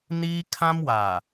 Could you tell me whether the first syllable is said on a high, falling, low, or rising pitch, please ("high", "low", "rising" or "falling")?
high